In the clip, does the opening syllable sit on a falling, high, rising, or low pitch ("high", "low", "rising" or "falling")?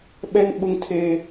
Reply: high